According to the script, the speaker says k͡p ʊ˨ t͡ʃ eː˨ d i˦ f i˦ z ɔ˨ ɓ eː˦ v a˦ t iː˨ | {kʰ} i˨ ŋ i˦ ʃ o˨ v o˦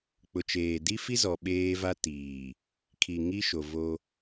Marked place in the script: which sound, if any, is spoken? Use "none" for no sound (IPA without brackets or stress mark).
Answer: kʰ